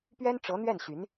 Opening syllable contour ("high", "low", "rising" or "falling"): high